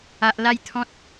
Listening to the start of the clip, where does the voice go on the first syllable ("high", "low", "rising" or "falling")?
high